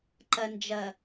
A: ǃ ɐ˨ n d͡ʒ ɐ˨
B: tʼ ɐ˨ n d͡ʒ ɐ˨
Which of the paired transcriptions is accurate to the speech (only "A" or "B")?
A